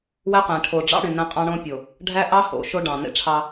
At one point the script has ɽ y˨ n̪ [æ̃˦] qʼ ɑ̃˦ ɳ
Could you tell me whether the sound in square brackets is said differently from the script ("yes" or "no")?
no